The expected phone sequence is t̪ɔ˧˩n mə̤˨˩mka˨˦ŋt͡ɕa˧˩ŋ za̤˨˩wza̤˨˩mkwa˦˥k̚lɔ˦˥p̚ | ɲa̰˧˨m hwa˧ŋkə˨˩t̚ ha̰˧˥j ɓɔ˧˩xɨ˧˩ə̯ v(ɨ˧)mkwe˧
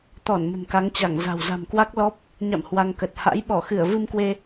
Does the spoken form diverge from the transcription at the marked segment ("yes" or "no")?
no